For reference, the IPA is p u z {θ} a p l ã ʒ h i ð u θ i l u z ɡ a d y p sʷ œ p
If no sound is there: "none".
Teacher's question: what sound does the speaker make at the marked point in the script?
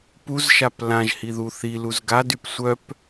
ʃ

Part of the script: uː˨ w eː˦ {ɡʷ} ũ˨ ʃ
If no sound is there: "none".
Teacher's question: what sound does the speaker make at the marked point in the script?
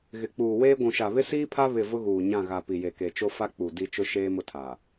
ɡʷ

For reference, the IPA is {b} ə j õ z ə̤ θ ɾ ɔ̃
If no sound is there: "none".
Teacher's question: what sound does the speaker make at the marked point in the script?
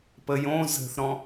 p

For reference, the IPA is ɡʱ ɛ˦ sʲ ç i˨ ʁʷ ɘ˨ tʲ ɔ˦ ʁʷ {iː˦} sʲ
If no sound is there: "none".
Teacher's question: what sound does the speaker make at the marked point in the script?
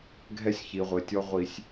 i˦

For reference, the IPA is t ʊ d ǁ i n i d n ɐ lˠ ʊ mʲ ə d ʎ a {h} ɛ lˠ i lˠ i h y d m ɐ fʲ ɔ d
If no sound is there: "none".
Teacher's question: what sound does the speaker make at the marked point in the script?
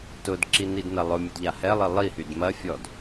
h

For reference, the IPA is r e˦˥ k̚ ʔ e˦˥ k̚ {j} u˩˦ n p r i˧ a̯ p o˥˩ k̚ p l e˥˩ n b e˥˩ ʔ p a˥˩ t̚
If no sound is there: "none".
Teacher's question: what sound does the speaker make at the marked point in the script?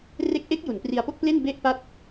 j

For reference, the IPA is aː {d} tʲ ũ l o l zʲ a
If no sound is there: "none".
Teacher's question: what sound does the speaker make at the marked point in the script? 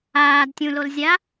d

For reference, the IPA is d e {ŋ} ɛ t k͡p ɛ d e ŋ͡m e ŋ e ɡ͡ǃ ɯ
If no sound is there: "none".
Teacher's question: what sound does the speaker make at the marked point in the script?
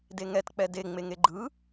ŋ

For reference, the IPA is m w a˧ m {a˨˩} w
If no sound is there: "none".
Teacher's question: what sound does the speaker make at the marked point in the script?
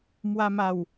a˨˩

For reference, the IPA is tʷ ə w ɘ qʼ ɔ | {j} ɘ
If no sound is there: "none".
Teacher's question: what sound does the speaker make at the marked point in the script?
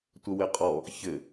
ç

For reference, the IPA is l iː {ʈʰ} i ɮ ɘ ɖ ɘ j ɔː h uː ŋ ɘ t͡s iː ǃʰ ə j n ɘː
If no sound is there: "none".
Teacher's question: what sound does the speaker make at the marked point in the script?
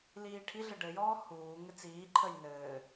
ʈʰ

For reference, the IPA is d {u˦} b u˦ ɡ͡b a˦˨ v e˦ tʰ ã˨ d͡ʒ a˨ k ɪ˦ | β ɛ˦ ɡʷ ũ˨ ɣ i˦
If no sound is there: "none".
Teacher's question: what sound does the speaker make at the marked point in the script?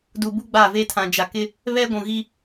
u˨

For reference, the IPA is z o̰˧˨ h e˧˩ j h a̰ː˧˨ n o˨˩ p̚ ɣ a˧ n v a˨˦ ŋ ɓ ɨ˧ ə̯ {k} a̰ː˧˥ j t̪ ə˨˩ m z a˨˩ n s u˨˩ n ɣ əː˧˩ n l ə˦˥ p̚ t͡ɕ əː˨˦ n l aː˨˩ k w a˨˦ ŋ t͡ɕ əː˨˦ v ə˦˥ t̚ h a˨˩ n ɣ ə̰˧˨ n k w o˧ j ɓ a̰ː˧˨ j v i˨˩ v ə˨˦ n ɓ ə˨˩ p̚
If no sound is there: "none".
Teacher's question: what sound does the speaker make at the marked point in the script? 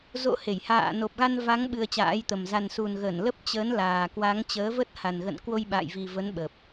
t͡ɕ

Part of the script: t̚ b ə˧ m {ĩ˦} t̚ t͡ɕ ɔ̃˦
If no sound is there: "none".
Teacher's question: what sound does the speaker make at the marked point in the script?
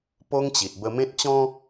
ẽ˦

